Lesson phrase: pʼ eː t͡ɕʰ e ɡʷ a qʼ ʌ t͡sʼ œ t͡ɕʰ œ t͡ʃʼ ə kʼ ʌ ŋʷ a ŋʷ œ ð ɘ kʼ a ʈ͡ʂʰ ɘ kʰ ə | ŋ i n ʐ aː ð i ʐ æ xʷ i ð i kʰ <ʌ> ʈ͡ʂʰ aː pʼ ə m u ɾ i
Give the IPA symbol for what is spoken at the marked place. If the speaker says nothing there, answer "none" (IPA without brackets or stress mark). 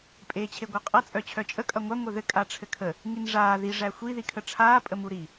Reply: ə